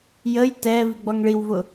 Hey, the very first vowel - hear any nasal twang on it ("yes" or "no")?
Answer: no